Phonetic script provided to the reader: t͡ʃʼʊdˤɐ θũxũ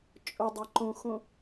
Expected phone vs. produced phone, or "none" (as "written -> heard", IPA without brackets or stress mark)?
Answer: θ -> ǃ